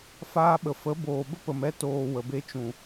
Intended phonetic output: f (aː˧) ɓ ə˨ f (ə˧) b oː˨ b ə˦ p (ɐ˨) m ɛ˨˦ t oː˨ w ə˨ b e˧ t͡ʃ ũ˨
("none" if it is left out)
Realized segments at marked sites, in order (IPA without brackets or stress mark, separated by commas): aː˧, ə˨˦, ə˨